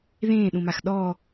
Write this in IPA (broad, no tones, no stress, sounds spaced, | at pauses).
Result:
ð ẽː ɗ ũ m a x ɗ ɔ